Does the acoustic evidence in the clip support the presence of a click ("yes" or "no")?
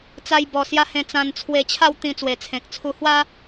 no